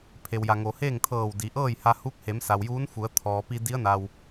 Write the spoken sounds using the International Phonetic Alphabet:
pʰe˩wja˩ŋo˩ heː˥˨ŋt̪ʰɤː˧˩w di˩˧ʔɤː˥˨jha˧ huː˧˥k̚he˩˧m sa˩wjuː˧˥nfu˩˧ə̯t̪ʰɔː˩ pi˧ di˧˥ə̯na˩w

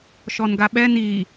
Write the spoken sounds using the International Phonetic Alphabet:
ʃɔnɡaɓɛ ni

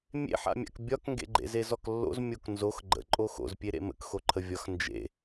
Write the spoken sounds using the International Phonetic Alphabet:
mʲḛħa̰mʲa̰k bʲɒkŋɡḛɡ͡ǃḛzez ɔklːo̰z mʲoknzox ɡ͡ǃə̰ ǃʼoxo̰zpʲe ɾḛmə̰kxoǃʰə vʲɒxnd͡ʒḛ

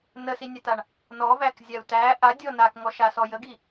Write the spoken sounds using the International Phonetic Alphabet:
nəsinʲataɳ | nɔvækzʲau̯ tæ ʔadʲɔ nakŋɔʃasɔ jəɡi

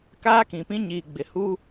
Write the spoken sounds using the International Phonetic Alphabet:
kaː˦kĩ˨pĩ˦ ɲiː˨ɡ͡bɪ˨hu˦

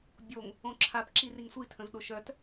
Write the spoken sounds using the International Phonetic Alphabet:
bʲoŋ | õǁʰapǁi riŋsʷitʰə̃zɗo ʃœt

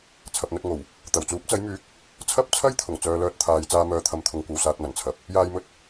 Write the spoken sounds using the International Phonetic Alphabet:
t͡sʰɐ˨p̚n̪ɵ˧t̚ŋo˨˩w | t̪ɐ˨˩wt͡suː˨˥p̚t͡sɐ˨˥j myː˨˥k̚ | t͡sʰɐ˥p̚t͡sʰɐ˥jt̪ʰʊ˨˩ŋ t͡sœː˧lœː˧t̚t̪ʰaː˨˧j t͡saː˧mœː˧t̪ʰɐ˨˥mt̪ʰʊ˨˧ŋ kʷɐ˧wsaː˧t̚mɐ˨˩n t͡sʰɐ˨p̚ | jaː˥jmɵ˥t̚

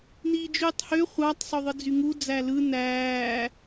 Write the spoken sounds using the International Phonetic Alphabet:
niːd͡ʒyːtˤhø χʷɑtˤ sˤoðˤɯd͡zyŋu d͡zælɯ næː

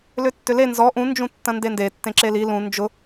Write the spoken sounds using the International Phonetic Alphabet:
lʏtːʏle nzɔ ʔũ nd͡ʒũtːɐ̃ndende tːẽǁeli lũ nd͡ʒʊ

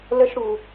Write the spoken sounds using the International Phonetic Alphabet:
lə˥ʃɽu˧

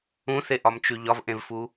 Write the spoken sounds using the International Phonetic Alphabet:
ũθeʔɒmt͡ʃʉ ʎɒvʔẽvfu

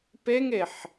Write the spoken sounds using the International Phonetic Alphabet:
peŋeħ

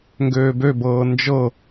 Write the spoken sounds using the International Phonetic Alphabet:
ŋɡøːbøbɤː nd͡ʒɤ

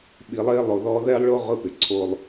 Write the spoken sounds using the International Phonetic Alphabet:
ɓi˨lˠɪː˦ lˠo˨ðɔː˦ ðɛ˦lˠɭo˦ ʁʊ˦pɪ˨ǀʰo˦lˠ

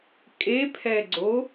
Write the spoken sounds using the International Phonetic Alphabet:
kʼepʰɛɡ͡ǀo

